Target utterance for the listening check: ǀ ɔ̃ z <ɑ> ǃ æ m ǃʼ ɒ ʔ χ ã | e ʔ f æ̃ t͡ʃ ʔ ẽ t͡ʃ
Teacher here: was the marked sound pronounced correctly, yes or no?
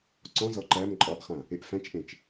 no